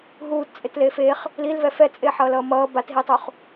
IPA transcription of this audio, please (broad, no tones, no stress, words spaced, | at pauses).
ɦuːtt͡sʼetleːf eχ | lilvɛ fɛt͡sʼeːħʌːlʌː mʌː batɦitˤuχ